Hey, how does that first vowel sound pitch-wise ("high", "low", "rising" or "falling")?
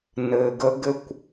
low